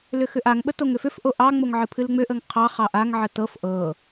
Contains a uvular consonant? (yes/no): yes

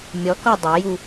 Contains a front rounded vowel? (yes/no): no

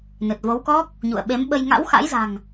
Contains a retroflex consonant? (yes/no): no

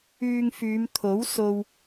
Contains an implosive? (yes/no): no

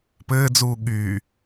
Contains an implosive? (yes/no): yes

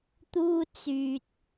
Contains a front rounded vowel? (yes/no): yes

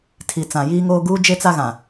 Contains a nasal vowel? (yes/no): yes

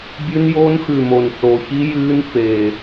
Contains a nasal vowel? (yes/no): no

